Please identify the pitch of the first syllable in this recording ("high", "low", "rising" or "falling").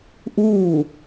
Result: falling